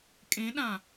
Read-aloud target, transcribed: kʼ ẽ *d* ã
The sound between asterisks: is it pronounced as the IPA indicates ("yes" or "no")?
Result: no